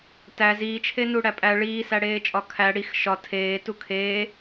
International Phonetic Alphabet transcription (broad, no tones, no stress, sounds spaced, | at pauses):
t æ z iː t͡ʃʰ e n u ɽ æ pʼ æ ɭ iː s æ ɽ eː t͡ʃʼ ɒ kʰ æ ɽ i x ʃ ɒ tʰ eː t u kʰ eː